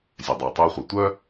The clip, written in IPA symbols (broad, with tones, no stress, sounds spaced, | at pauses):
zʲ œ˨ dˤ uː˨ tˤ œː˦ χʷ œ˨ tʷ œ˦